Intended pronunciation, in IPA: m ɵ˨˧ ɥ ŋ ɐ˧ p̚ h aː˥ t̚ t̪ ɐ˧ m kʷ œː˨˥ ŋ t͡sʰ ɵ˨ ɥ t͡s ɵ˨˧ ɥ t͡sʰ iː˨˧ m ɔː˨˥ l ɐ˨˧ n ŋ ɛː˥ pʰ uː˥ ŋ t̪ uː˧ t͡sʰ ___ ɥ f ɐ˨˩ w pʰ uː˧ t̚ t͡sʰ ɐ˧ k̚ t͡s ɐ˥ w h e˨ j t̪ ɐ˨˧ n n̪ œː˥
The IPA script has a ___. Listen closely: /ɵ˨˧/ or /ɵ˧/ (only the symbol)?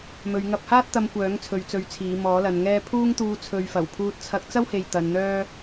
ɵ˨˧